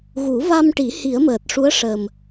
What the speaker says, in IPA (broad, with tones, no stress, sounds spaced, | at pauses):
ɣ u˨˩˦ v a˧ m ʈ i˨˩˦ h i˨˩˦ ə̯ m əː˨˩ t̚ ʂ u˧˥ ə̯ ʂ əː˨˩ m